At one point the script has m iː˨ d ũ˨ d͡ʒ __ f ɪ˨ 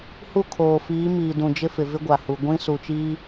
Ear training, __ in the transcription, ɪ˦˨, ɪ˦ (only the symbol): ɪ˦